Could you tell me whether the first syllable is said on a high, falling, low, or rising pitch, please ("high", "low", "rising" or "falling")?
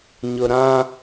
low